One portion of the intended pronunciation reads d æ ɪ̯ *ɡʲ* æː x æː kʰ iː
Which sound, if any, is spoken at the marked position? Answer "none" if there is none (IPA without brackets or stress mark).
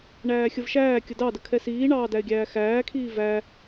ɡʲ